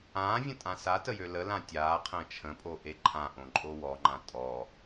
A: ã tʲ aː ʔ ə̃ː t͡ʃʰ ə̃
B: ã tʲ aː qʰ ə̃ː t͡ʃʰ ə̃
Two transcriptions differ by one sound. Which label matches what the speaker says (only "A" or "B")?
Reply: B